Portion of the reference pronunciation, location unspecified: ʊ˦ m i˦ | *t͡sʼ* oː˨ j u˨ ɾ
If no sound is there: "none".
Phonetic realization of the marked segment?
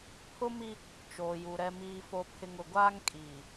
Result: t͡ʃ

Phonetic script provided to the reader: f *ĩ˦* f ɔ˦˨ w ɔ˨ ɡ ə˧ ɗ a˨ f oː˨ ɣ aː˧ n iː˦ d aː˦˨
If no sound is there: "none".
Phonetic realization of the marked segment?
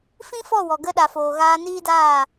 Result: ĩ˦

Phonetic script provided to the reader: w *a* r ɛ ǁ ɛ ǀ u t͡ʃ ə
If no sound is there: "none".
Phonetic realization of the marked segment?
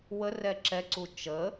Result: ə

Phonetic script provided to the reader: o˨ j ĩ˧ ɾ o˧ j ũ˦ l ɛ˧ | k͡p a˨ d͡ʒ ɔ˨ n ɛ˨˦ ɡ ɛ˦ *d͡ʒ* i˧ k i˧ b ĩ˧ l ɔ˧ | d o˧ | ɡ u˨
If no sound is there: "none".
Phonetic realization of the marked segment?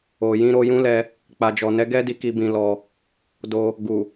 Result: d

